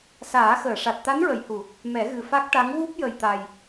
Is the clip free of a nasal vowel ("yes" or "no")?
yes